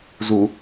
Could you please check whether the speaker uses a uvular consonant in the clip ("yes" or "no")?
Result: no